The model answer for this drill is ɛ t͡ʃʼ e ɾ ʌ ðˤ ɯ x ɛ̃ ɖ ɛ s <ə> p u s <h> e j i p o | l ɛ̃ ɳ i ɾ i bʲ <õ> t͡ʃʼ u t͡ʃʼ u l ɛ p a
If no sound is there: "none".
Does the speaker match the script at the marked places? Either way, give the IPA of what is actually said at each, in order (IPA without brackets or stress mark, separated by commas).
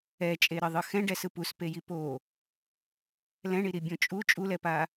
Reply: ɯ, p, õ